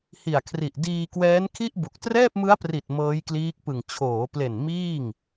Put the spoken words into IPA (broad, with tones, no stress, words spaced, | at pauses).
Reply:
hi˨˩a̯kʰri˨˩ʔ diː˧kwɛː˦˥nkʰi˥˩ʔbu˨˩k̚ trɛː˥˩p̚mɯ˦˥a̯pri˨˩t̚ mɤː˦˥jkliː˦˥k̚pɯ˨˩ŋ t͡ɕʰoː˩˦ple˨˩n miː˥˩ŋ